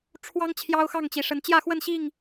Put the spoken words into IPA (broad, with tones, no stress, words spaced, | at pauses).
ʈ͡ʂʰwɑ˦ŋ t͡ɕʰjɑ˦ʊ̯xɑ˥˨ŋt͡ɕi˨˩ʂə˨˦n t͡ɕjä˥˨xwə˥˨nɕi˥˨ŋ